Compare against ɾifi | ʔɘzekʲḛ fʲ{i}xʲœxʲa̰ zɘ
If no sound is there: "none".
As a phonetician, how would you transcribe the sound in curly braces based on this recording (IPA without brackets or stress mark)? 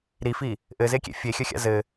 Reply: e